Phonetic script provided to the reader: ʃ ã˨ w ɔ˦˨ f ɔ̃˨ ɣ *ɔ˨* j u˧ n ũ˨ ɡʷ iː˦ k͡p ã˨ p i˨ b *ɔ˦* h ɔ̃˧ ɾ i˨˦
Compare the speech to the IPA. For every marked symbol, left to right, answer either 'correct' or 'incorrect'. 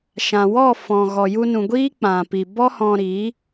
correct, correct

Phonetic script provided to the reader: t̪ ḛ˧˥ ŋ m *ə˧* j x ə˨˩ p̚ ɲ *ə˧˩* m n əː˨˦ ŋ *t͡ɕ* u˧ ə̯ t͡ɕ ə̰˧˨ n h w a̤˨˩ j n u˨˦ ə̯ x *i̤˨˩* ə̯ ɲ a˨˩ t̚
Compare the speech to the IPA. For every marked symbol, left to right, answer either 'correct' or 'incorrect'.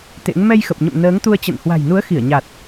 incorrect: ɛ˧, incorrect: ə̰˧˨, incorrect: t̪, incorrect: i˧˩

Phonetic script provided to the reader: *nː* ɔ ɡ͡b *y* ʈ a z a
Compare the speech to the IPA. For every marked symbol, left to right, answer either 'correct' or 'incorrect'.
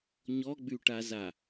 incorrect: ɲ, correct

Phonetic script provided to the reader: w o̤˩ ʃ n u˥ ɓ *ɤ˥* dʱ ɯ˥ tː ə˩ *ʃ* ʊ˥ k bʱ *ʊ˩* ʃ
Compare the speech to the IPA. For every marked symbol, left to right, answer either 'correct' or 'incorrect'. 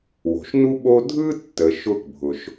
incorrect: o˥, correct, correct

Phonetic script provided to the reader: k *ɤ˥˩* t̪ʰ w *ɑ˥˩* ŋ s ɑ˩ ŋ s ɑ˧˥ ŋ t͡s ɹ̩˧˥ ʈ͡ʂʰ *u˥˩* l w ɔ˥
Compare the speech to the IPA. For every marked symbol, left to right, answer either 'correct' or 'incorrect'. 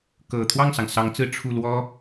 incorrect: ɤ˨˩, correct, correct

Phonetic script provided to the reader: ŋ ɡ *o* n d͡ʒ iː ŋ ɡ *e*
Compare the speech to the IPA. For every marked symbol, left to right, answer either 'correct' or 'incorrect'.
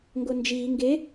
correct, correct

